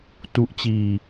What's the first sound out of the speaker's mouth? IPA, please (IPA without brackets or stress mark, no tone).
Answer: t